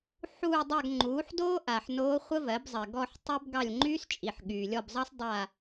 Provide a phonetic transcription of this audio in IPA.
ħ uː˦˨ dˤ a˦˨ ɡ ŋ͡ǃ uː˩˥ ħ d oː˥ ʔ a˨ ħ n oː˧˥ χʷ ə˥ v ɜ˩˥ b zˤ ɜ˨ ɡ ɔ˦˨ ħ tˤ y˥ b ɡ ɑ˦˨ lʲ ŋ͡ǃ yː˥ s t͡ʃʼ i˨ ħ ɠ yː˨ lʲ ɔ˦˨ b zˤ ɑ˥ s dˤ a˦˨

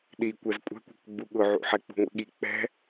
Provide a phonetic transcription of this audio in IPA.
ɗ i kʷ ɛ z kʷʼ ɛ̤ kʷ ɛ̤ k ɡ͡b u ɠ ʊ ʕ ṵ ħ ɛ k͡p ṳ ŋʷ ḭ ɠ i k͡p ɛ̤

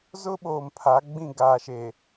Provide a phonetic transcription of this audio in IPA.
z ʊ˦ ɓ oː˨ m pʰ a˨˦ ɡ͡b ĩ˦˨ ɡ aː˨ ʃ eː˨

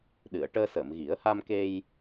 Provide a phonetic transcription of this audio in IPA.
ɗ ɨ˨˩˨ ə̯ ʈ əː˧ s əː˨˩˨ m ɣ i˨˩˦ ə̯ h a˧ m k e˧ j

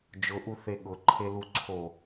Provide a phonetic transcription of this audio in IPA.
d͡ʒ ʊ ʔ u θ e ɠ ʊ ǃʰ e l u ǀʰ o

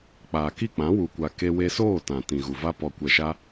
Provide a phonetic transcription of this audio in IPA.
k͡p aː˨ k i˦˨ k͡p ã˨˦ w u˧ kʷ a˧ k e˧ w e˧ s oː˦˨ t ã˨ t ĩ˨ ɣ u˨ v a˦ p ɔ˨ kʷ ɛ˨ ʃ a˧

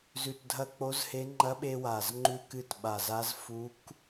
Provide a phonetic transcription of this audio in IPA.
z ʉ˨˩ t dʱ ɐ˧ k͡p o˧˥ z h e˧˥ ŋ͡ǃ ɐ˧˥ ɓ e˧ w a˨˩ z ŋ͡ǃ ʉ˧ k ɨ˧ t ɓ a˨˩ z a˧˥ z f u˧˥ k

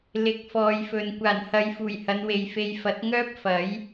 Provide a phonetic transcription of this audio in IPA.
l ɪ˨˥ k̚ f ɔː˨ j f ɵ˨ n kʷ aː˨˩ n h ɐ˨˧ j f uː˨˩ j h ɐ˨˧ n w e˨ j f e˧ j f ɐ˨˥ t̚ ŋ œː˥ p̚ f ɐ˨˥ j

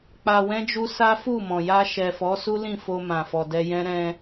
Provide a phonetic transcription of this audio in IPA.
k͡p a˧ w ɛ̃˦ d͡ʒ u˦ s a˦ f u˦˨ m ɔ̃˨ j a˧ ʃ ɛ˨ f ɔ˨˦ s u˦ l ĩ˦˨ f o˧ m ã˨ f ɔ˨ d ɛ˧ j ɛ̃˦ ɾ ɛ̃˧

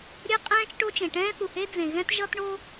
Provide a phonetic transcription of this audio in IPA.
ɾʲ e˥ qʼ ɛ̃ː˥ t͡ʃ ʈ o˥ t͡ʃ ẽ˩ ʈ ɛ̃ː˥ θ u˩ h e˥ d͡z ẽ˩ ɣ ɛ̃˥ t ʒ ʌ˥ t ɳ o˥

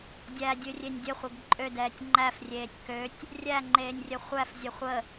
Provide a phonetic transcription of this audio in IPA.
dʲ æ dʲ ɨ rʲ e nʲ dʲ ə χʷ ə ɡ ǃʼ ø d ɛː tʲ ŋ͡ǃ æ f rʲ eː tʲ k ø tʲ | rʲ æ ŋ͡ǃ eː nʲ rʲ ə χʷ æ f zʲ ə χʷ ə

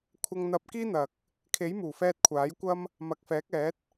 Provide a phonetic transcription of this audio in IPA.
kʷʰ ɐ˧ ŋ n̪ ɐ˧ p̚ k iː˥ n̪ ɐ˨ k̚ | kʰ e˨˥ j m uː˨˩ f ɛː˧ t̚ kʷʰ aː˨˥ j kʷ ɐ˥ m | m ɐ˨ k̚ f ɛː˨˥ k̚ ɛː˨˥ t̚

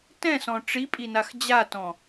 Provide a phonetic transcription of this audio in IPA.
t ɛ̃ s ɔ̃ ʈ͡ʂ i pʼ i n a x d͡ʑ a t ɔ̃

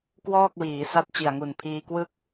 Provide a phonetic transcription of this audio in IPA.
k w ɔː˥˩ k̚ w iː˩˦ s a˦˥ t̚ t͡ɕ i˨˩ a̯ ŋ u˨˩ n pʰ iː˧ k w ɯ˥˩ k̚

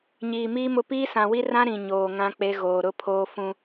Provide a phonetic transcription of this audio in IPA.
ɲ iː˨ m iː˦ m ʊ˦ p iː˦ s ã˨ w i˦ r ã˦ ɾ ĩ˨ ɲ oː˨ ŋ ã˦ k͡p e˦ ɣ oː˨ ɾ ʊ˦ pʰ oː˦ f ũ˦

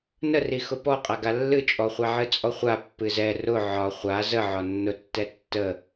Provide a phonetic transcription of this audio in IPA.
n ə r i x ʊ p ɔ qʼ a ɡ a lː ɨ t͡ʃʼ ɔ χʷ a ʕ ɨ t͡sʼ ɔ χʷ a pː ɨ z ɛ r ʊ ʕ ɒ χʷ a z ə ʕ ɒ nː ʊ tː ɛ tː ə

